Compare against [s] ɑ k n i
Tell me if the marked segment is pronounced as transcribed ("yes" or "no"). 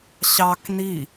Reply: no